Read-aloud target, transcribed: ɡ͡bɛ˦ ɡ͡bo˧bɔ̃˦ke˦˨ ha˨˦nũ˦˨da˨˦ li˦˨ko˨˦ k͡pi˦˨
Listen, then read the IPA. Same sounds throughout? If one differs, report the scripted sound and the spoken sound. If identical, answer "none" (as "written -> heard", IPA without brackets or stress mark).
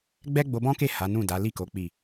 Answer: none